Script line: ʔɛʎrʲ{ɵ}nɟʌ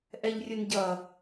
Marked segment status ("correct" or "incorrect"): correct